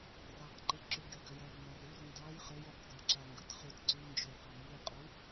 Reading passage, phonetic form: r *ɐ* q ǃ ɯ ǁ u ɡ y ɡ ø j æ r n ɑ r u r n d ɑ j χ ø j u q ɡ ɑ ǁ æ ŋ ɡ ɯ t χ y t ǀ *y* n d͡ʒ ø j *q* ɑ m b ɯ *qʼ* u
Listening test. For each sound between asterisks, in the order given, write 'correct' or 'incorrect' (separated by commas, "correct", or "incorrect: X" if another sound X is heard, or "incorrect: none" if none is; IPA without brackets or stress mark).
incorrect: ɑ, correct, correct, correct